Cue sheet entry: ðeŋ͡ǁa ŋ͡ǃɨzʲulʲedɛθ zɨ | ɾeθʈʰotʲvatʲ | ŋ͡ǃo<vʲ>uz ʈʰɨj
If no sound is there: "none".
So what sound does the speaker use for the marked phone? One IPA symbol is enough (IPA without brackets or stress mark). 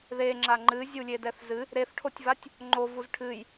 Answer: v